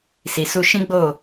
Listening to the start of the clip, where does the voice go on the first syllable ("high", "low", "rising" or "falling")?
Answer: low